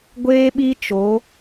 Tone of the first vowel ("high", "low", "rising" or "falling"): high